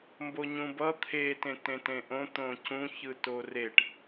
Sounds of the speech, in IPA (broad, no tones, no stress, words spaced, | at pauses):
mboɲũbʌ t̪ʰe tẽtẽtẽʔõ t̪õcũ çɯtoreʈ